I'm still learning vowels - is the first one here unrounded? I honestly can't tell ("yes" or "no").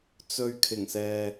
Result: no